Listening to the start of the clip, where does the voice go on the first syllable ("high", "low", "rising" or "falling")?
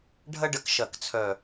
high